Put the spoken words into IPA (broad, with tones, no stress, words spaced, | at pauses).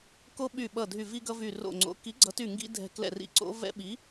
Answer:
ko˦ɓy˧˩ɓʌ˧˩ dʱy˧˩vi˦ɡʌ˦vy˧˩ ro̰˧˩ŋ͡ǀo̰˨˥ ki˨˥ɡ͡ǀʌ˨˥ty˧˩ ŋɡḭ˦dʱɛ̤˧˩ klɛ̰˧˩rḭ˧˩ǀo̰˦ vɛ̰˦ɓi˨˥